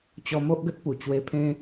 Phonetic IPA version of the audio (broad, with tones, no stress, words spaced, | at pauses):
t͡ɕɔ˧mo˦ʔɡə˦t̚pu˨˩ t͡ɕwe˧pʰẽ˦